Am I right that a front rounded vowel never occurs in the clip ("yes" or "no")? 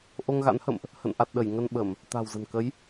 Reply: yes